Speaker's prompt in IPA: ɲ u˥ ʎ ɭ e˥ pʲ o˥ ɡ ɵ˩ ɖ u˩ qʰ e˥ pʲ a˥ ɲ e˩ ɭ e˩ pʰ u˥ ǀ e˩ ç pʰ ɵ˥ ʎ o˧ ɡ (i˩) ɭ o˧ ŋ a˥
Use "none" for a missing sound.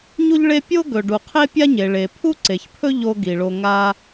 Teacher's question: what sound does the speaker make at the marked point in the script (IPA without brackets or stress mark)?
i˩